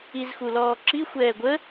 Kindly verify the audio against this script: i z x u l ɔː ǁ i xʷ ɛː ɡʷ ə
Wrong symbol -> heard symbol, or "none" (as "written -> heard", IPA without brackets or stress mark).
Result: none